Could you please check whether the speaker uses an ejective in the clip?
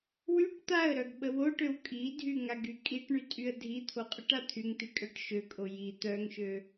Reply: yes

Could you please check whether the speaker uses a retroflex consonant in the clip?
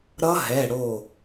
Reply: yes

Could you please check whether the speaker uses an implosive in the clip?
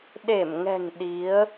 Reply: yes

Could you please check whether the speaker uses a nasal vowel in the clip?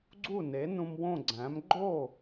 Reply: yes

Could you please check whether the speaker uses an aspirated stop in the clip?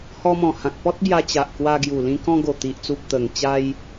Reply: no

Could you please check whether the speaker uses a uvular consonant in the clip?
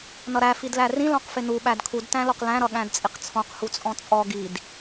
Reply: yes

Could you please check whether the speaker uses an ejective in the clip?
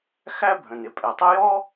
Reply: yes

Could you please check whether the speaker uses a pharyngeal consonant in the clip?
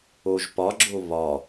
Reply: no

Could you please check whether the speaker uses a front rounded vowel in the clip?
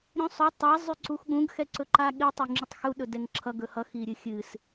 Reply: yes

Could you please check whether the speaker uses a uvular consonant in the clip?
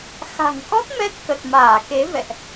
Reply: no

